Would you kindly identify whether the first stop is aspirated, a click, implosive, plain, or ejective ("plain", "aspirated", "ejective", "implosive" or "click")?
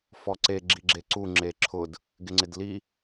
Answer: click